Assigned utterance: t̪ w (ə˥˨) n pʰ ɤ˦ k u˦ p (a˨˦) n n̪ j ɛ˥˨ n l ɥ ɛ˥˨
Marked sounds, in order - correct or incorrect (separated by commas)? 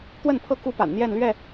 correct, incorrect